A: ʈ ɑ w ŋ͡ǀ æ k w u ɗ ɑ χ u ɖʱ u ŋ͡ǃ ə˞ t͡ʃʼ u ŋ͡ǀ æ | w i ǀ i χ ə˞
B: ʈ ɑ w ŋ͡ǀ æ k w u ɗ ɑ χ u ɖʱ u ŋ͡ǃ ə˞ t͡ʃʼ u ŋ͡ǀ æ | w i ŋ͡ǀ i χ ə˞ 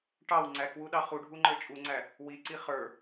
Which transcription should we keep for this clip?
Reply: A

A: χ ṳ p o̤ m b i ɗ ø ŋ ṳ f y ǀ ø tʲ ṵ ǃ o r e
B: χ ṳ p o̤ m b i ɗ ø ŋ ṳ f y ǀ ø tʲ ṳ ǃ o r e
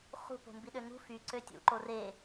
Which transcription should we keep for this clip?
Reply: A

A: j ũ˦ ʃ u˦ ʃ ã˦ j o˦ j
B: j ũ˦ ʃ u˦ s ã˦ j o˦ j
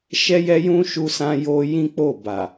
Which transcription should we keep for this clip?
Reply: B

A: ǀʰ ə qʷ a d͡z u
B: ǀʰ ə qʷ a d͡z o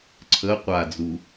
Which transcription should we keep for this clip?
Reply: A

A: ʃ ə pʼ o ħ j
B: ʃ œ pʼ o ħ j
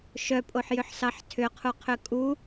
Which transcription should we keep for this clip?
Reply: B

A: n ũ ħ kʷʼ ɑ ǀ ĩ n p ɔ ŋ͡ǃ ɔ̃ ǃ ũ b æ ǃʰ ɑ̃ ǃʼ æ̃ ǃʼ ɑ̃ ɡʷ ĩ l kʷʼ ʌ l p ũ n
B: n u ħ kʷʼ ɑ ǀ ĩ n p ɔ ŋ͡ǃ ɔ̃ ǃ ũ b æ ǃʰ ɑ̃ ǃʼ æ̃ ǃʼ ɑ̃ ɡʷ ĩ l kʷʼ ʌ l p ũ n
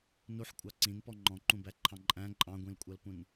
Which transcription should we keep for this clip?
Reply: B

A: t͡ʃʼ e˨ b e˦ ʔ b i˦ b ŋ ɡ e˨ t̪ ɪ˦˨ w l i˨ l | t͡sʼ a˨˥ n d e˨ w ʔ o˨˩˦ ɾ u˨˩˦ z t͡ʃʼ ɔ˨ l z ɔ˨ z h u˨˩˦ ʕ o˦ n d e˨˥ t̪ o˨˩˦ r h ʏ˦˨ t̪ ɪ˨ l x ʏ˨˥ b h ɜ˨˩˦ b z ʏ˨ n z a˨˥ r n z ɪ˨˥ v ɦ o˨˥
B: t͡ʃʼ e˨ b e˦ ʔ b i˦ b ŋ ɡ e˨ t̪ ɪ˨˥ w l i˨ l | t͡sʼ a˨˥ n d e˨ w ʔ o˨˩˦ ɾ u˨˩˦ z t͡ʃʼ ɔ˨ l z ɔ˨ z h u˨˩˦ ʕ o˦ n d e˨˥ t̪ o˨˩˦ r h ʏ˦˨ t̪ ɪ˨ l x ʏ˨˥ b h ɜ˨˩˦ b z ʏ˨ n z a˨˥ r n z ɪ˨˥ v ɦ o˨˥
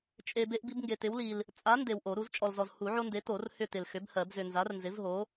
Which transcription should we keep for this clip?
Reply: B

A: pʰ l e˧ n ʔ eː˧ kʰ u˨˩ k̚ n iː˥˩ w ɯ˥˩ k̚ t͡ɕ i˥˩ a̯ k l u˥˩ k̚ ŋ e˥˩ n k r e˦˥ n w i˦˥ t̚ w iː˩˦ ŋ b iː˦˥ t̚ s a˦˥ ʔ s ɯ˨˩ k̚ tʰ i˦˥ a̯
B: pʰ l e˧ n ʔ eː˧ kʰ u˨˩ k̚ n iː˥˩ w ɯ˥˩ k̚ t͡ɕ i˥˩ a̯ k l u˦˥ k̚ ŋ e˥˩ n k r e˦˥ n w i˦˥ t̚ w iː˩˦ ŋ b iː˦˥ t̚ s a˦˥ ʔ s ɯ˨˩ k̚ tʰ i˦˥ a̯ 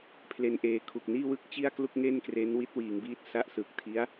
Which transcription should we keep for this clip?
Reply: A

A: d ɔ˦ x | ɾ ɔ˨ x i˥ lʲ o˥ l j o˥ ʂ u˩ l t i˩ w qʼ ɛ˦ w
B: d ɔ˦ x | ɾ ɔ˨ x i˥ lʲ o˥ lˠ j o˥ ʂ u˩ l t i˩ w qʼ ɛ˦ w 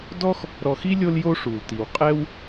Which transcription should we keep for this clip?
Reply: A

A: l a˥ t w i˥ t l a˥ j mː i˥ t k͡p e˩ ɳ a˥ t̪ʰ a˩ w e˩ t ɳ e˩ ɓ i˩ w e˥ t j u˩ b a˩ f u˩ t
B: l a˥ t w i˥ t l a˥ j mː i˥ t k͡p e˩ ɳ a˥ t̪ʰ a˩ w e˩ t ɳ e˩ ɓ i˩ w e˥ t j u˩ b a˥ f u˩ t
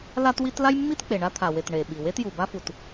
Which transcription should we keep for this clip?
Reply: B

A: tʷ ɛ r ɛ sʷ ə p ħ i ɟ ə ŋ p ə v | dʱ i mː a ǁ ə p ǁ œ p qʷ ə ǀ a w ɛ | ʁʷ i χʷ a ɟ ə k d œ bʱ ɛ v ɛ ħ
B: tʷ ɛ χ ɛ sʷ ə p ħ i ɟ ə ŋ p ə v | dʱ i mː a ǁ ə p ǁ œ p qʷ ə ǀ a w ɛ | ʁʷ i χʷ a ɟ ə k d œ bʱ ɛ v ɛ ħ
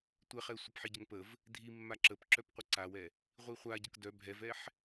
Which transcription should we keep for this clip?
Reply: B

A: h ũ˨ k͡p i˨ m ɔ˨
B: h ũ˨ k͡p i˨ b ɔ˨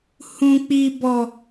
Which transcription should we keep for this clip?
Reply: B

